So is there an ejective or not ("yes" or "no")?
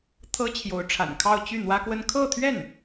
no